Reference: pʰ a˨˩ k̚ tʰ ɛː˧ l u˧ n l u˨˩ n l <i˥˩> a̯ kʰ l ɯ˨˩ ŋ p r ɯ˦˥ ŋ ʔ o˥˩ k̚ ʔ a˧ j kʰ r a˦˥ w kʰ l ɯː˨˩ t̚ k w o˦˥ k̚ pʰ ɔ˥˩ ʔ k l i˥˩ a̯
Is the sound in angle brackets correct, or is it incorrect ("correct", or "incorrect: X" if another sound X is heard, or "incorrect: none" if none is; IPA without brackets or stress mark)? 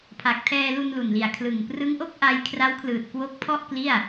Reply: incorrect: i˨˩